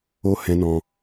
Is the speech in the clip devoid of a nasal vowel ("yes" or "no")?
no